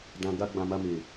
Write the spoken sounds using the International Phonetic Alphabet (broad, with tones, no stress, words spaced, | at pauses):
dã˨ɡa˧ ɡ͡bã˨ma˧me˨